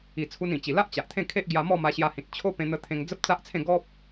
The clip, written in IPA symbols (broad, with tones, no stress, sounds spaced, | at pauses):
i˨˩ t͡sʰ u˧ n ĩ˨˩ t͡ɕ i˨˩ l a˦ ʔ t͡ɕ a˨ ʔ t̪ʰ ẽ˥˧ kʰ e˦ ʔ ɡ j a˧ m ɔ˥˧ m a˧ ɕ j a˧ h ĩ˨ t̚ t͡ɕʰ o˦ p ẽ˧ n̪ ə˧ t̪ʰ ẽ˧ ŋ d͡z ə˦ p̚ t͡s a˦ ʔ t͡sʰ ẽ˥˧ ɡ ɔ˦ p̚